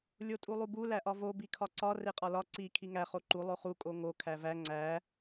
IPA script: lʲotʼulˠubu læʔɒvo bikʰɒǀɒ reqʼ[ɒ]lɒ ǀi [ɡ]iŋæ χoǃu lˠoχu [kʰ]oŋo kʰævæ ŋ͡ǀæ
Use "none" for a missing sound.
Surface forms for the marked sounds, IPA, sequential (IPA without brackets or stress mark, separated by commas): ɒ, kʰ, kʼ